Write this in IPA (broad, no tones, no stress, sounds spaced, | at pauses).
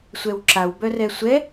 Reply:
sʷ ɛ w ǁ a w b œ r ɛ sʷ ɛ